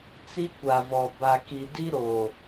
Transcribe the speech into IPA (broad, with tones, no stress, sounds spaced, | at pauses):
t͡s i˦ kʷ a˨ v ɔ˨ b a˨ k i˨ d i˦ ɾ oː˨